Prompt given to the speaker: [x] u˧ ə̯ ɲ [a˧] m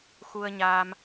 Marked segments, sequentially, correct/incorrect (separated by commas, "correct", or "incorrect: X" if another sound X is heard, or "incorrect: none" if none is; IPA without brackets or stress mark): correct, correct